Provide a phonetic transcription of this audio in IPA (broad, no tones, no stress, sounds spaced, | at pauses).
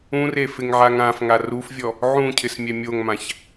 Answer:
ũ r e f ɪ ŋ ʕ a ŋ ã f ŋ a r u f vʲ ɔ | ʕ ũ cʰ ɪ s mʲ ɛ mʲ o ŋ m ã ç